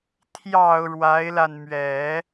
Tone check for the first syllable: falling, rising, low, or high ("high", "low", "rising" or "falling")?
low